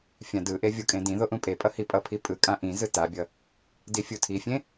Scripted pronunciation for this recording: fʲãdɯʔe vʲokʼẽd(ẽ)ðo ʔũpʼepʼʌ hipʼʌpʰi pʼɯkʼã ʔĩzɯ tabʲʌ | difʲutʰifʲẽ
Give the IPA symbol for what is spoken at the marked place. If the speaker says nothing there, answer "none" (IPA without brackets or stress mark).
ĩ